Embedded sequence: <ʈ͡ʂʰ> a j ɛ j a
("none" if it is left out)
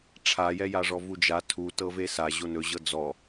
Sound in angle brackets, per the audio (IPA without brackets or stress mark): ʈ͡ʂʰ